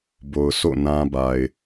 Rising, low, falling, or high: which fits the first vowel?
low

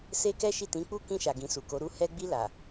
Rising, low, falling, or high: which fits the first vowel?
high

